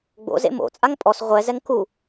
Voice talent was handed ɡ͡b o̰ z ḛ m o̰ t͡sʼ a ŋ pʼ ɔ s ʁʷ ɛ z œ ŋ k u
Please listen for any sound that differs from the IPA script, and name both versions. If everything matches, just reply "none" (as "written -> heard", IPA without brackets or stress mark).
œ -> ɛ